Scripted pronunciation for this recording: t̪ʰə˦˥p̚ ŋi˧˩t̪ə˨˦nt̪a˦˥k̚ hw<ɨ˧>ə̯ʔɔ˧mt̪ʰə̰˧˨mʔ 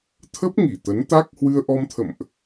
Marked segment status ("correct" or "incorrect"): correct